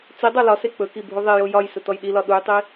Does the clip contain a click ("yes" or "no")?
no